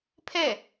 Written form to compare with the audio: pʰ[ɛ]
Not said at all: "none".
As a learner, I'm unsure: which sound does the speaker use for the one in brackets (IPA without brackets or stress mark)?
ɛ